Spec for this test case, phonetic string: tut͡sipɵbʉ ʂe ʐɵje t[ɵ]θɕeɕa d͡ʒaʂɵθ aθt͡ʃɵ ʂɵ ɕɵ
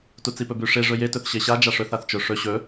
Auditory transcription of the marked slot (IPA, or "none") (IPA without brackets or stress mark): ɵ